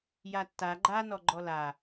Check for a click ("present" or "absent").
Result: present